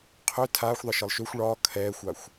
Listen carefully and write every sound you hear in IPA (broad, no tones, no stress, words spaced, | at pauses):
qʰø tʰaːxʷðˤɤʃɤlˠ ʃøxʷ ɭɒː kʰɛːxʷaxʷ